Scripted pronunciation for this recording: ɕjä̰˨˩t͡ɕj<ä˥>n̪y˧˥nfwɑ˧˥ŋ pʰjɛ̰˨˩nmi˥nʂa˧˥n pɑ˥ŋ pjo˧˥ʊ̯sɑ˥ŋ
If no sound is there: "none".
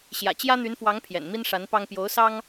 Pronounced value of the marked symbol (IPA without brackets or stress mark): ä˥